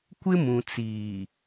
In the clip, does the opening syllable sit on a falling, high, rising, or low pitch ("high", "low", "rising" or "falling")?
high